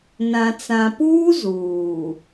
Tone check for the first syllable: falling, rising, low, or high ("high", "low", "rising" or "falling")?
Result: low